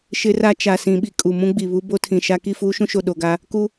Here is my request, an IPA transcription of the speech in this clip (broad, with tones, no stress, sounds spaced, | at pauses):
ʃ ɪ˦ r a˦ t͡ʃ a˨ s ĩ˨ ɓ i˨ kʼ u˨ m ũ˦ ɡ͡b i˨ β u˦ b o˦ tʰ ĩ˨ ʃ a˦ k i˦˨ f uː˦ ʃ ũ˦ ʃ o˨ ɗ o˨ ɡ a˦ | k u˦